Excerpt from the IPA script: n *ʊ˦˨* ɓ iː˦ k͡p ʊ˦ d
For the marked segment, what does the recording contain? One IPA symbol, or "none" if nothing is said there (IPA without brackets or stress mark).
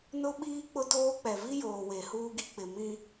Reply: ʊ˦